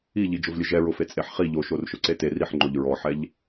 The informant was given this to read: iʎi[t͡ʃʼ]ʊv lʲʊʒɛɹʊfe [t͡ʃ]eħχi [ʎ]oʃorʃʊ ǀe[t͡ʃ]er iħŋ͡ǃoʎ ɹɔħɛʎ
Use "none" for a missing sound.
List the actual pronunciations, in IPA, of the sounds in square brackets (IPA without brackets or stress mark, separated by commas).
d͡ʒ, t͡sʼ, ʎ, t